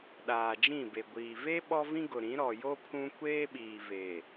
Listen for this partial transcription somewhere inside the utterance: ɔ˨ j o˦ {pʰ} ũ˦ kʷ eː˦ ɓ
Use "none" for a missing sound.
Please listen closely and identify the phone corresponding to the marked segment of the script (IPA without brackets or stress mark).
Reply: pʰ